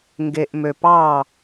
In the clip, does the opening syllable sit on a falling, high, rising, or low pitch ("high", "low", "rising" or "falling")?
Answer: low